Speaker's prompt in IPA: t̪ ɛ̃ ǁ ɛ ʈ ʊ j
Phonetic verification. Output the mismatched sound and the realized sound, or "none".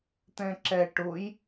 none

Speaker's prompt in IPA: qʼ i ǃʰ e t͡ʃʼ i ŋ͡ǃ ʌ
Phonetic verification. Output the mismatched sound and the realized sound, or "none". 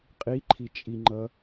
e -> i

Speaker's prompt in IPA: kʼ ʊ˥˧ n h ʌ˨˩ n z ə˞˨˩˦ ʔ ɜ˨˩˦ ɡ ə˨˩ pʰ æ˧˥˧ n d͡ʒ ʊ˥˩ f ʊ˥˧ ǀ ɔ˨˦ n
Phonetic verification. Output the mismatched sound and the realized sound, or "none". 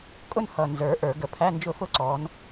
ɜ˨˩˦ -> ə˞˨˩˦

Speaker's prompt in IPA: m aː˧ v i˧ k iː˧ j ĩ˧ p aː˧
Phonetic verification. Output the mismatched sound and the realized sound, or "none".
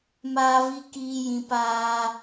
none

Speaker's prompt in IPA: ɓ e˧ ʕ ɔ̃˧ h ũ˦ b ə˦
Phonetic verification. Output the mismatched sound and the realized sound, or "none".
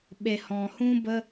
ʕ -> h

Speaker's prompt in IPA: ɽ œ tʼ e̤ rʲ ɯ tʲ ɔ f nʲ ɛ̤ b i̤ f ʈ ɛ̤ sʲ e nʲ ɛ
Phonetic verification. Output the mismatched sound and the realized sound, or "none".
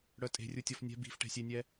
ɯ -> u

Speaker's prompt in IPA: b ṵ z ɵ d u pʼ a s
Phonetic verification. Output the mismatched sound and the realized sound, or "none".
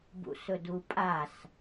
z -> s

